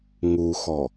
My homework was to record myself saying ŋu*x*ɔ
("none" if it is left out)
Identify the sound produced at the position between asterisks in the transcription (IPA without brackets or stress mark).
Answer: x